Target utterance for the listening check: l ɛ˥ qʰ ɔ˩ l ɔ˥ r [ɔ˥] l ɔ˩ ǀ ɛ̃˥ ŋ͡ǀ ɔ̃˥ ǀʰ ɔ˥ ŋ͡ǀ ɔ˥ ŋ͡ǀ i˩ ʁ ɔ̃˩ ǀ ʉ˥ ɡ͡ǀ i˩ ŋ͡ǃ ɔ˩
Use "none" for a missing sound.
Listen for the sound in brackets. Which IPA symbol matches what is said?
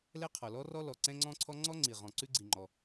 ɔ˥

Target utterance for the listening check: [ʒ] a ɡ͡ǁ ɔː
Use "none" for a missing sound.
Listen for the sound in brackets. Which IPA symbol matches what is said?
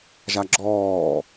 ʒ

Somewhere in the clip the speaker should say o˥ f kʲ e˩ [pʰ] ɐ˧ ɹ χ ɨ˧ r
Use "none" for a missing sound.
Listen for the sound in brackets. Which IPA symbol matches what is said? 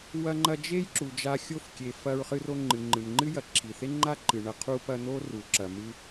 f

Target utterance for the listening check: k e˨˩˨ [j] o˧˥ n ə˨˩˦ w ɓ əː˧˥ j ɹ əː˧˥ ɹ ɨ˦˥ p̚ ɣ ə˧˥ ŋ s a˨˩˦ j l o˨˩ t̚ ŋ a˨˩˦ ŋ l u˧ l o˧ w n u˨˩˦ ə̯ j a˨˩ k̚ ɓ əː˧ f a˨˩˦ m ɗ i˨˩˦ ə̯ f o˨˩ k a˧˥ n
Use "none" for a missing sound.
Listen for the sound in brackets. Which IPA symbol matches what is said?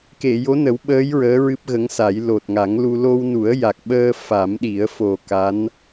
j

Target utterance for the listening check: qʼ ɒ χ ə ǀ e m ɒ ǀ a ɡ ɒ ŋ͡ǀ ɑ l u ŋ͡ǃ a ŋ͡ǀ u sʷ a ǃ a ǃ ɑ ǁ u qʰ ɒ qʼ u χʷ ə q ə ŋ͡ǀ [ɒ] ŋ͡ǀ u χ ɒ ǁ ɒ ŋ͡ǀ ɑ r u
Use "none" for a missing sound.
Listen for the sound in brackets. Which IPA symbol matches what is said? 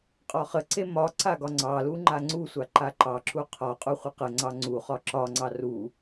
ɑ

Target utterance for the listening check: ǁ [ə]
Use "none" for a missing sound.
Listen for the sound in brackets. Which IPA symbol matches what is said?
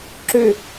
ø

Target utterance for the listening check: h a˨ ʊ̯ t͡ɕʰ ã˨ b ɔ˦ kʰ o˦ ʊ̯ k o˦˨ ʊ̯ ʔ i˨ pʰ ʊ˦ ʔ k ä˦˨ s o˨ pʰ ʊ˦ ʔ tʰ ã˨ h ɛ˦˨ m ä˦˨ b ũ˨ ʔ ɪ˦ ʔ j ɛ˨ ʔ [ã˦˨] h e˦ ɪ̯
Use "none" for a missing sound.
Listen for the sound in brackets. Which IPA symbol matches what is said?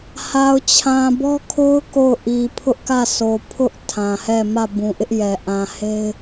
ã˨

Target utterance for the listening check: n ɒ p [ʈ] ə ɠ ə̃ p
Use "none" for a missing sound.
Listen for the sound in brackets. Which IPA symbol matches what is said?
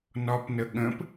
n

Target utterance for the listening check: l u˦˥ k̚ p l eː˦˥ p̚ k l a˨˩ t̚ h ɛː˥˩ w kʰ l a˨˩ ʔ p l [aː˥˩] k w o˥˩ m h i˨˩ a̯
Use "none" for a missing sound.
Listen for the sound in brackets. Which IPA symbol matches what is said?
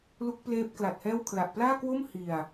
aː˥˩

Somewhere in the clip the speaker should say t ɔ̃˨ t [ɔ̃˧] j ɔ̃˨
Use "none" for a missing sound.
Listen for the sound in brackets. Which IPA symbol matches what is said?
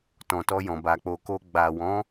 ɔ˧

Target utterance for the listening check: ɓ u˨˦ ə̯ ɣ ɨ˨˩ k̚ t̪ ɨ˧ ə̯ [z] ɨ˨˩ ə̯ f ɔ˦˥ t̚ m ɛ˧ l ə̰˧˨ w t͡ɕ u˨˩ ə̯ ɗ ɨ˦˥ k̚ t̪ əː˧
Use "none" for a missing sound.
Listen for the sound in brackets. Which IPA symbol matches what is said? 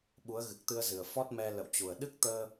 z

